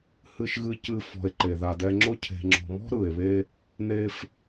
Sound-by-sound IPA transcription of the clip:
hɨ˨ʃɣɨ˨cɨ˨ fɔ̤˨e̯ǃe˩ða˨dɛ˦ ŋ͡ǁʊ˦cʰe̤˨ ŋ͡ǁɔ̤˨mɔ̤˥ ɾɯ˩e̯βe˦ | ne˦f

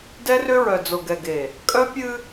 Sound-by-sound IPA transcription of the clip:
dɛ˦rʏ˦ɹœ˨ d͡zo˨ɡɛ˨ɡe˨ | kʼœ˦pʲɨ˦

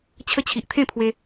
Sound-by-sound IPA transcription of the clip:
t͡ɕʰə˧t͡ɕʰi˨ʔ t̪ʰẽ˥˧pʰwe˧

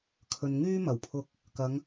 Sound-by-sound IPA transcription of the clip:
kʰɵ˨nŋyː˥ mɐ˨˩wpʰʊ˧k̚ | kɐ˨˧ŋ

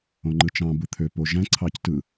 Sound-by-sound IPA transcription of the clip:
õŋ͡ǃɯt͡ʃɑ̃ bɯt̪ʰø poʒæ̃ ǀʰɑctɯ

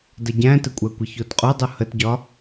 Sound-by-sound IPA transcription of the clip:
dɐɟæ̃tɘkʷʼæ kʷəçotqʼodˤu hətɟɒ

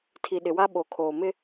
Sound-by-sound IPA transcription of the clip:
tʰi˨ɗɪ˨wa˦ ɓo˨kʰoː˨mɪ˦

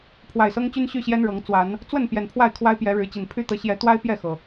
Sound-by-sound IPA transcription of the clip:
pʰwa˨˩ɪ̯sɤ˦ŋt͡ɕy˦n ɕy˥˨ɕjɛ˦nɻɤ˨˦ŋ t͡swa˨˦n | t͡swə˥˨n pjɛ˨˩npʰwa˥˨ɪ̯ kʰwa˦ɪ̯pjɛ˨˦ɻɻ̩˨˦t͡ɕi˨˩n pʰy˦t̪ɤ˨˦ ɕjɛ˨˦t̪wa˦ɪ̯ pjɛ˥˨xɤ˩

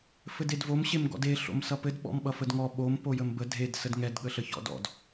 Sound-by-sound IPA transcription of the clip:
fɘdedvom ɕemɡɔ̰de ɬo̰msʌpɘd ɓɔ̰mɓʌfədŋɔ ɓom pojəmbə dʱed sədŋɛd ɠəɬəçɔ̰dɔ̰d

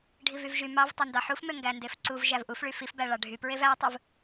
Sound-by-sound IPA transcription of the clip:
ɖʱivyvʒy mɑv tˤøndɑħufmø ŋɡændefǀuv ʒævʔufɭy fifbæɭɑ ɖʱypɹev ætˤɯv

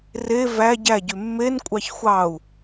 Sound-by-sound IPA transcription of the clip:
re væ ɟæɟy mːen kʷʼɑçxʷɑu̯

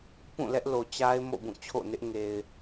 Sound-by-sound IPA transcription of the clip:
pũ˦˨ lɛ˦ʔlo˨t͡ɕa˦ɪ̯ mo̰˦˨bũ˦˨t͡ɕʰo̰˦˨nɪ˦ʔ ŋe˨ɪ̯

